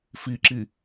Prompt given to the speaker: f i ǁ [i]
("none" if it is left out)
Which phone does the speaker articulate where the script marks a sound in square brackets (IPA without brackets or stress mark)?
i